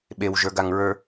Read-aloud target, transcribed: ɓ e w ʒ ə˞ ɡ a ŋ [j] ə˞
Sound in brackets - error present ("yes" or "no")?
yes